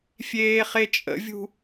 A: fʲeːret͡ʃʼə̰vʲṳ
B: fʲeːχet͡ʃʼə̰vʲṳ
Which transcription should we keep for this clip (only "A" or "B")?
B